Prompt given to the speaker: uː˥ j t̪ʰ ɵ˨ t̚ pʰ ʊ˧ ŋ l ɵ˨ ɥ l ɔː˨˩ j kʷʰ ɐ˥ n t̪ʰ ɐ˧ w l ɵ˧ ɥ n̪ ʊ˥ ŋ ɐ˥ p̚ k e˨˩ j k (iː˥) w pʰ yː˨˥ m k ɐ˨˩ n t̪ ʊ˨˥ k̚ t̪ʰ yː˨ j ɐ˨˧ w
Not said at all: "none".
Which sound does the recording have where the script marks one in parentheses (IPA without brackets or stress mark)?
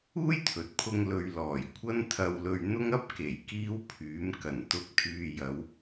iː˥